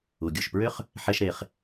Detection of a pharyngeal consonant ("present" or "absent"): present